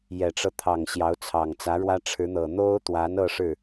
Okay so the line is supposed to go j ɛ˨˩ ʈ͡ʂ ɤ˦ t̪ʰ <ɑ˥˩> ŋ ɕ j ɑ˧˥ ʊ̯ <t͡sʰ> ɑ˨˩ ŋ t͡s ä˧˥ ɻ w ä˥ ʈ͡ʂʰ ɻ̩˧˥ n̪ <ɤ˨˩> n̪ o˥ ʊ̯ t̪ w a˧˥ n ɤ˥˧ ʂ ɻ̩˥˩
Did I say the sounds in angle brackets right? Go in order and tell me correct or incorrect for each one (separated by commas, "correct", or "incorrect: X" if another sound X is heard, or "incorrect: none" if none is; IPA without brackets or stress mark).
incorrect: ɑ˨˩, correct, correct